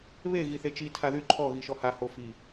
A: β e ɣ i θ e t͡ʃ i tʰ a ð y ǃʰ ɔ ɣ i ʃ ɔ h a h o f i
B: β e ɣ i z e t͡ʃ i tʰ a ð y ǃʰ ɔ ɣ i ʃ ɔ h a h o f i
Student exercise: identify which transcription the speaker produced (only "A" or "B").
A